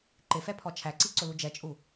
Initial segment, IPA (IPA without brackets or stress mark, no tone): ǃ